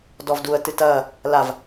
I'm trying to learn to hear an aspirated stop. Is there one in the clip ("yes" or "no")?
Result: no